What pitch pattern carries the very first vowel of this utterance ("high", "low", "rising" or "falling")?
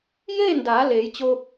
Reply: falling